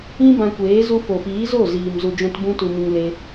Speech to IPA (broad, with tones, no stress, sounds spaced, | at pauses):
ĩ˦ b ã˧ kʷ eː˨˦ z u˧ f o˨ f iː˨˦ z o˦˨ z iː˧ m z u˧ d͡ʒ ɛ̃˦ t b ũ˦ t u˧ m ĩ˧ ŋ l e˦